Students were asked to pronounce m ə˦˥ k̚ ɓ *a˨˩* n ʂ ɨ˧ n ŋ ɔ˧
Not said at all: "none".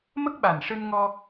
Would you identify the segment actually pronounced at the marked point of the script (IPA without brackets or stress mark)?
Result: a˨˩